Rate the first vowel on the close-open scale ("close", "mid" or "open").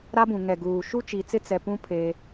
open